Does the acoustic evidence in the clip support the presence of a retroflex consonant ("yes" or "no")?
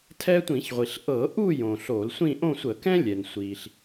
no